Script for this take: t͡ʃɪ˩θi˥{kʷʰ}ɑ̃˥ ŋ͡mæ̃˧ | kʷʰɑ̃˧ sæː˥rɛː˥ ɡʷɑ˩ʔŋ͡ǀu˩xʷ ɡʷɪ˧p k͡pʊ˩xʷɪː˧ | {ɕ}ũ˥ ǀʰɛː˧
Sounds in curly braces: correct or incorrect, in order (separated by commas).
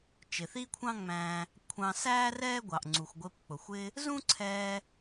correct, incorrect